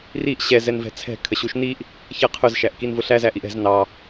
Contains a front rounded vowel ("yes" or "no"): no